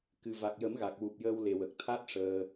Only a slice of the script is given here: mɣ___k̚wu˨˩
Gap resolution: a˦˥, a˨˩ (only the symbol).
a˨˩